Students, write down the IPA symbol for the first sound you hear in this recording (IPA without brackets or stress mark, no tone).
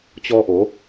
t͡ɕ